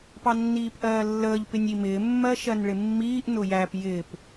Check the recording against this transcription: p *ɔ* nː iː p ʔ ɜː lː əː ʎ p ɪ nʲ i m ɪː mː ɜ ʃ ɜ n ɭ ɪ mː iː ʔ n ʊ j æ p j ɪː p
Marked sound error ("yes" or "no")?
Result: yes